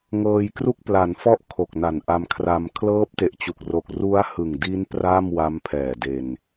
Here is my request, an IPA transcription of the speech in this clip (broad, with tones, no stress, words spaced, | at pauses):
ŋɤː˧jkru˥˩k̚pla˩˦nfɔ˥˩ʔ kʰo˨˩k̚na˨˩nʔa˧mkʰra˧m kʰlɤː˦˥p̚te˨˩ʔt͡ɕu˨˩k̚ro˨˩k̚ ru˦˥a̯hɯ˨˩ŋdi˦˥n pra˥˩m wa˦˥mpʰɛː˨˩de˧n